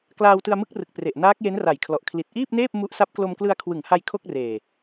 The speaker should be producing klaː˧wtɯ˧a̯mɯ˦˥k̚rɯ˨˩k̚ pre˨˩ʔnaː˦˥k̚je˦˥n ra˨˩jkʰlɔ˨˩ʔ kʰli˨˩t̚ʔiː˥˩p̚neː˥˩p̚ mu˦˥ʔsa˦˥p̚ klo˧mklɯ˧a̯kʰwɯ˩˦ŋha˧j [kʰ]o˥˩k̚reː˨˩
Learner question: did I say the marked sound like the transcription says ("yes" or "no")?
yes